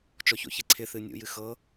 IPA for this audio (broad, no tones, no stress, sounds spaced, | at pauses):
t͡ʃ ɔ ç o̰ ç e ǀʰ ɪ θ ɨ nʲ ṵ j ɨ x ɤ